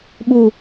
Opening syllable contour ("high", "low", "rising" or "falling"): low